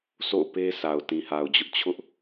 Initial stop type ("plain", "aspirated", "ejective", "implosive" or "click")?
plain